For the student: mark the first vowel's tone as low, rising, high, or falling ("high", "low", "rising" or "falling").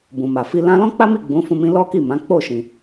low